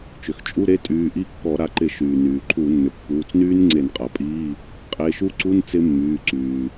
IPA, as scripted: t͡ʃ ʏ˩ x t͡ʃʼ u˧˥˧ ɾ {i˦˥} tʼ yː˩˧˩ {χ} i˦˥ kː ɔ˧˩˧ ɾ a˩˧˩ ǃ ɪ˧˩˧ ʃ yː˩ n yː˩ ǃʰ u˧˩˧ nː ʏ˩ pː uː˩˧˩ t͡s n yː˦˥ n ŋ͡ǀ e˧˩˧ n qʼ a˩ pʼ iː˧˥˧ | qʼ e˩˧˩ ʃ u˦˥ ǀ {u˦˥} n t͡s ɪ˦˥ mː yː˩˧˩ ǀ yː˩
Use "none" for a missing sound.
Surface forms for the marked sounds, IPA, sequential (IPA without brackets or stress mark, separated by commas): e˦˥, ʔ, u˧˥˧